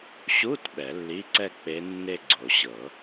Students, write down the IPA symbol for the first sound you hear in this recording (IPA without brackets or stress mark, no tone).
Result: ɕ